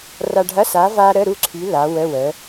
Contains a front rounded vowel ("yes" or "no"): yes